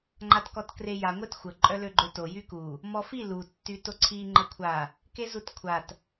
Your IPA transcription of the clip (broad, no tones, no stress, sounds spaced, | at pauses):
ŋ͡ǃ a t k ɔ t k r e j a ŋʷ e t xʷ ə ǃʼ œ l ø ɡ͡ǃ ø t o j y k u | m ɔ f i l u tː y t o ǀʰ i ŋ͡ǃ ə kʷʰ a | k e z u t kʷʰ a t